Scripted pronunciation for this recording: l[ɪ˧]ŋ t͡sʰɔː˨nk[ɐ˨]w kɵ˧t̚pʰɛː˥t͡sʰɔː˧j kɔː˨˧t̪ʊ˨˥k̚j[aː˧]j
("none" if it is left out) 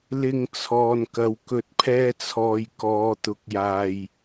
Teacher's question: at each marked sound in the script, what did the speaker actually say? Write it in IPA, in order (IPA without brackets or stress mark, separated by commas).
ɪ˧, ɐ˨, aː˨